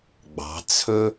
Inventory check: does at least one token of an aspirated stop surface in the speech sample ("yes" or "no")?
yes